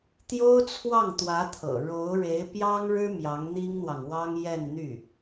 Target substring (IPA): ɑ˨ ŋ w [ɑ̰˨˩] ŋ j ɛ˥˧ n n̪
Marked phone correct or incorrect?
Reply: incorrect